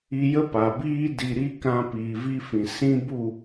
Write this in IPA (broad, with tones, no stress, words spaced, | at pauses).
i˧jə˦ pa˨biː˦ di˨ɾi˧ kã˦ piː˨vi˦fĩ˨ sĩ˦bu˦˨